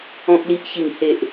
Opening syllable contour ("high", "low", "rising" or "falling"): low